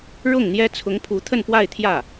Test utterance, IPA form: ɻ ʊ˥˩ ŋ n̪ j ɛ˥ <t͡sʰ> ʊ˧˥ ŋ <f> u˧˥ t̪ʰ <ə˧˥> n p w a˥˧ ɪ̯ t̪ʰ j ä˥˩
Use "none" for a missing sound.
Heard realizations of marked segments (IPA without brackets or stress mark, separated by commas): t͡sʰ, pʰ, ə˥˧